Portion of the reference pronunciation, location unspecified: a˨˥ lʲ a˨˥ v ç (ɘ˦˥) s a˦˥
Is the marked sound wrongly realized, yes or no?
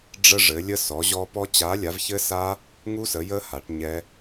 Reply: no